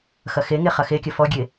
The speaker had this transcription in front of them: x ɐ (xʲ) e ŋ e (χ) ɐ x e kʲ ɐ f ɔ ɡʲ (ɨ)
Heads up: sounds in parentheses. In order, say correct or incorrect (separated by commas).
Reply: incorrect, correct, incorrect